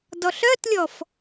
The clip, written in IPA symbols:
dɔɬœtlʲɔf

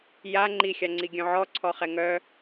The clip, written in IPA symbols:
ja ŋ͡ǃixʲa ŋ͡ǀiɡʲœ̃ʕɔ ǀʰɔχɛŋœ

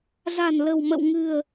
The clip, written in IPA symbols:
za̤˨˩nlə̤˨˩wmə̰˧˨wŋɨ̤˨˩ə̯

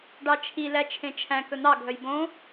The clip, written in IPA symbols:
ɖɑt͡ʃʰi læt͡ʃʰẽt͡ʃʰæ̃ kɵn̪ɑ ɡʱœjbõ

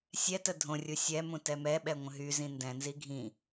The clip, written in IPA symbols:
sʲɛtə dʱõrʲu sʲɛ mũtɛmɛɓɛ ŋʷə̃ɦyzĩ ndɛ̃nzi ɡʱĩ

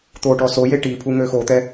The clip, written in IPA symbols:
t̪oʈɔ soje ʈipʰu ŋøxot̪ɛ

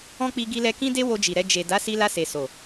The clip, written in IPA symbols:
ɔ̃˦k͡pi˧ ɡi˧lɛ˧kĩ˦de˦ wo˧d͡ʒi˨ɾɛ˧ d͡ʒe˨ da˨˦si˧la˧ se˨so˨

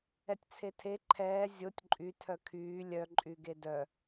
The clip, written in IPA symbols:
ɛtʲt͡sʰetʰe ǃʰɛː zʲotʲ ǃʼy tʰœkʰyː lʲœ ǃʼyɡedœ

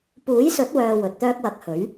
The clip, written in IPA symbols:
puː˨˥jsɵ˨˥t̚wœː˨ wɵ˨t̚t̪œː˥k̚wɐ˧k̚ hɵ˨˥ɥ

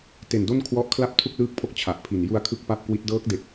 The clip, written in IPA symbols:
te˨˩ndo˥˩nkʰwɔ˦˥ʔ kʰla˥˩p̚tʰu˥˩k̚lɯː˦˥k̚pʰo˦˥k̚ t͡ɕʰa˨˩ʔpʰi˨˩n ju˧a̯kʰɯ˦˥k̚ pa˥˩p̚kwi˦˥t̚ dɤː˦˥k̚ de˨˩k̚

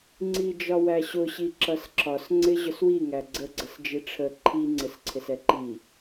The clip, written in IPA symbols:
ŋ͡ǀid͡ʒɒwæɕʊ ɕiǁʌsǁɒs ŋ͡ǀɪʑʊswi ŋæɡ͡ǀə ɡ͡ǀəsd͡ʒiʈ͡ʂʰə ǃʰi ŋ͡ǀɪsǀʰɪsɛǃi

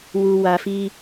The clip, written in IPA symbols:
wu˨wa˨fi˦

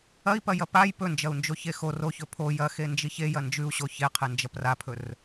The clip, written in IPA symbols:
ɐi̯pɐjɐ paj pɵnd͡ʒɐu̯nd͡ʒoçe xo roçɵ pʰo jɐxend͡ʒiç ejɐ nd͡ʒʉu̯ɕo çeqʰend͡ʒɐp rapʰɵr

